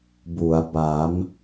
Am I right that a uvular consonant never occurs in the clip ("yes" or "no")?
yes